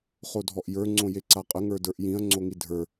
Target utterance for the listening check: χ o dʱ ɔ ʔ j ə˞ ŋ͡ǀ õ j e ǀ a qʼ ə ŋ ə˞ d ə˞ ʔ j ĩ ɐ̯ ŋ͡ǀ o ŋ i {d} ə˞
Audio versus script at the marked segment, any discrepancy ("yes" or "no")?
yes